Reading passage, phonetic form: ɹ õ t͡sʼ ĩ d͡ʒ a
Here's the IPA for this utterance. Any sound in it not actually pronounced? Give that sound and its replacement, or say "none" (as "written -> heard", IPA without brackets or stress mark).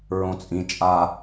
d͡ʒ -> t͡ʃʼ